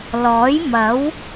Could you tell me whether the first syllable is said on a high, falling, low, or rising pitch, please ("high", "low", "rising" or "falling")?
rising